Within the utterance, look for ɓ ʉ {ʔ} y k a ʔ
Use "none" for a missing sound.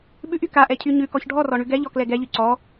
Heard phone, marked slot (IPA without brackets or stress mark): ʔ